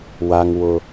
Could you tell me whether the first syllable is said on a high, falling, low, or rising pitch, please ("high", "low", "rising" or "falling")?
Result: high